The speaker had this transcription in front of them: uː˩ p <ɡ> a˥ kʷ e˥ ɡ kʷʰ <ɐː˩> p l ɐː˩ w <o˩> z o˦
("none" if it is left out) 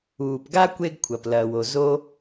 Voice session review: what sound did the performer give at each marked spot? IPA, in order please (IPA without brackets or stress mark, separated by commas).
ɡ, ɐ˩, o˩